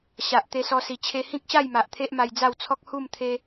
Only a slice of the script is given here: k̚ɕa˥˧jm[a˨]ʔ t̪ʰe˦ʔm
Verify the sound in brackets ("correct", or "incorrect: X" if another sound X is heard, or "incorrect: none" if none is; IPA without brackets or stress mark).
correct